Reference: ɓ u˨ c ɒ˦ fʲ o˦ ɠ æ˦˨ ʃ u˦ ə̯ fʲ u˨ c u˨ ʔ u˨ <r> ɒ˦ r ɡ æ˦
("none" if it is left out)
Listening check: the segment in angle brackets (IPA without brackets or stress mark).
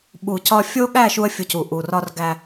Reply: r